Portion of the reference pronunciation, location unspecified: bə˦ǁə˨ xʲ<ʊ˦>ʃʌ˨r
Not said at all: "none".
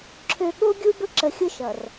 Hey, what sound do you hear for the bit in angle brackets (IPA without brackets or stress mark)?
ʊ˦